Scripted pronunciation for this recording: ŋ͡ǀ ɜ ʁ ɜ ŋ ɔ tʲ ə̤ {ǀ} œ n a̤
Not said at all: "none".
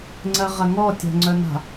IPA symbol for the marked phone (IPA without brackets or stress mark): ŋ͡ǀ